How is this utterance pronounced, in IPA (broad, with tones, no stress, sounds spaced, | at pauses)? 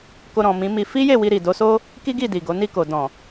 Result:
k o˧ ɾ ɔ̃˨ m ĩ˨˦ m i˧ f i˦ j e˦˨ w i˧ ɾ i˨ d o˨˦ s o˦ | k i˦ ɡ i˦˨ d i˨ ɡ o˨˦ n i˦˨ k o˨ d ɔ̃˨